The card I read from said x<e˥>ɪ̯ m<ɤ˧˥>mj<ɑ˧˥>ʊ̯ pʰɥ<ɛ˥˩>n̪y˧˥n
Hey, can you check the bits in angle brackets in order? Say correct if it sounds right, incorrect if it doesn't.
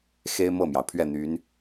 correct, incorrect, incorrect, correct

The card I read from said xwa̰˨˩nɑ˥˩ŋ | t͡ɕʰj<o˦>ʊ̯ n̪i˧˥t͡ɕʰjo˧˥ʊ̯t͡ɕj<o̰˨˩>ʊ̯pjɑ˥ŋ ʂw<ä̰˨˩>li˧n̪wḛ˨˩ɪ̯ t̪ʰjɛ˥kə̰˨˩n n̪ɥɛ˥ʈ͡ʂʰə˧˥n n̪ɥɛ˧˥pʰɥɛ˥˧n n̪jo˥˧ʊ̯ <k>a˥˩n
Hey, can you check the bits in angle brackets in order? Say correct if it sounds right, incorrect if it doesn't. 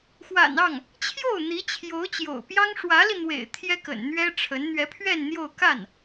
incorrect, correct, incorrect, correct

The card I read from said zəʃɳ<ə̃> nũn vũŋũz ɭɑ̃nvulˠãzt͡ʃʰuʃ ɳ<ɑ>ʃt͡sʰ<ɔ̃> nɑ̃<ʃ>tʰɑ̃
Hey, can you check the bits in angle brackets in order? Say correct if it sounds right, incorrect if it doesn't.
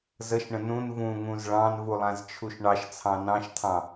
correct, correct, incorrect, correct

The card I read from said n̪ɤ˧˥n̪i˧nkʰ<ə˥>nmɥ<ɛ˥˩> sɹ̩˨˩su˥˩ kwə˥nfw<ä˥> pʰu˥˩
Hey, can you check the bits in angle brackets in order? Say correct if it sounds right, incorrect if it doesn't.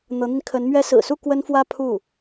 incorrect, incorrect, correct

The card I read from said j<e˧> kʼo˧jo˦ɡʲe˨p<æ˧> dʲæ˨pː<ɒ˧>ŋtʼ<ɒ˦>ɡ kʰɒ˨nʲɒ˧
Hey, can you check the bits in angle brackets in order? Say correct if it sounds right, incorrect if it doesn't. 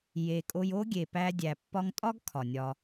correct, correct, correct, correct

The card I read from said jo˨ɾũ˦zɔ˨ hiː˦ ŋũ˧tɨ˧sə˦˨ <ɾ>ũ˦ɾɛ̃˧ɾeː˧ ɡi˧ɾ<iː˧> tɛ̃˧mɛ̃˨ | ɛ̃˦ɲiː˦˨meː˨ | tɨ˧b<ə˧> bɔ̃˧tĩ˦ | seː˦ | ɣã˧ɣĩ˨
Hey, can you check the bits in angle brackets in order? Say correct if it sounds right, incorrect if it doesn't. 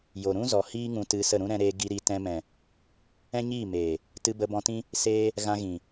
correct, incorrect, correct

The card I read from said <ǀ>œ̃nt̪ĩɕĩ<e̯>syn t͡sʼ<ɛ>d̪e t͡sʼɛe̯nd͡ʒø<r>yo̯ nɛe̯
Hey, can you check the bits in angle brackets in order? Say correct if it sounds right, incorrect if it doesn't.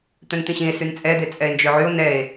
incorrect, correct, correct, incorrect

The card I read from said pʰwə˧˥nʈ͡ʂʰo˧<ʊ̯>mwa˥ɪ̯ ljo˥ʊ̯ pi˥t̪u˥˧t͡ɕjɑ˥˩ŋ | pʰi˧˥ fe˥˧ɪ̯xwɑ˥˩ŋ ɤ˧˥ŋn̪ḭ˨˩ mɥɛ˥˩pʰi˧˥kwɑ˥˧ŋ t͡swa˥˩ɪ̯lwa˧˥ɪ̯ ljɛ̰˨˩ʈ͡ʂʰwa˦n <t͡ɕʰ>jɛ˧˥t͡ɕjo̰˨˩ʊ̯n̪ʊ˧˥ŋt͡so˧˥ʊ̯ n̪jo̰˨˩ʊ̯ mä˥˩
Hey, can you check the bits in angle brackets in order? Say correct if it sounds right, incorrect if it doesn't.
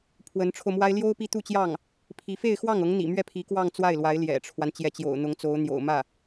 correct, incorrect

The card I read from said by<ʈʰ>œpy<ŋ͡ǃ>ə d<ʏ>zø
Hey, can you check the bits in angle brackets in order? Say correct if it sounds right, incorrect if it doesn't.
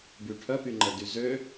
correct, correct, incorrect

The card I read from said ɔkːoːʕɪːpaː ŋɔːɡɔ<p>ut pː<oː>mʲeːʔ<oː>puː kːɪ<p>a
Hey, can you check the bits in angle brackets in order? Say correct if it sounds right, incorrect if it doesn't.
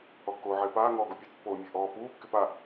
incorrect, correct, incorrect, correct

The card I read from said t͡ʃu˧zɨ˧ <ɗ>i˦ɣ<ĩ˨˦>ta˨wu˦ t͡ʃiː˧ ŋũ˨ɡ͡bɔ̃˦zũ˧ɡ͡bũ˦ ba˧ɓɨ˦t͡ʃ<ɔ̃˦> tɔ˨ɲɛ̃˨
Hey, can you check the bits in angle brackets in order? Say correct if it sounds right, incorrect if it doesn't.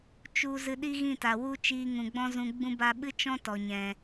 correct, incorrect, correct

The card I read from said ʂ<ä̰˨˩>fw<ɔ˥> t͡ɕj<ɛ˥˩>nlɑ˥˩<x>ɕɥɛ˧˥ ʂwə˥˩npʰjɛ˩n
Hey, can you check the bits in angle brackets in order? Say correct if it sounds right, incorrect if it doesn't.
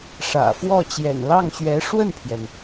correct, incorrect, incorrect, incorrect

